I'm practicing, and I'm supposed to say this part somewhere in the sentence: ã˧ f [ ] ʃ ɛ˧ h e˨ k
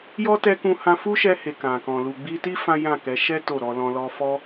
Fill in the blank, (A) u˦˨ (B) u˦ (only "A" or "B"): B